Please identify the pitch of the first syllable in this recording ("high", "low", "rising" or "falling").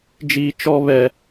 high